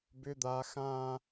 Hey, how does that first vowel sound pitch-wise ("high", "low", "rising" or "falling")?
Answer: high